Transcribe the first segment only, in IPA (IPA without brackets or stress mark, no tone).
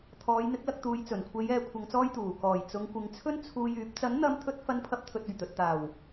t̪ʰ